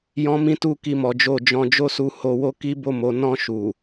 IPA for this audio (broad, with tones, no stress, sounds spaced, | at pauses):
j ɔ̃˦ m ĩ˦ t u˦ k i˦˨ m ɔ˨˦ d͡ʒ o˦˨ d͡ʒ ɔ̃˧ d͡ʒ o˦ s u˧ h o˧ w o˦ k i˦ b o˦˨ m o˨˦ n ɔ̃˦˨ ʃ u˨